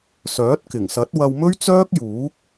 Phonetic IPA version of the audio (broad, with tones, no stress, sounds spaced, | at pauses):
s œː˨˥ t̚ k ɪ˨˩ ŋ s ɐ˨˥ t̚ w ɐ˧ w m ɵ˥ ɥ t͡s œː˥ k̚ j uː˨˥ k̚